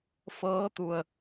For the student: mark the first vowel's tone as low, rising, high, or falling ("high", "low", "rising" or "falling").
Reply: rising